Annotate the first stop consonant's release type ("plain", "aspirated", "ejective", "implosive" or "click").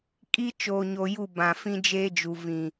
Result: ejective